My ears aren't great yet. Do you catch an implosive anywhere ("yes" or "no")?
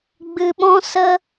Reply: yes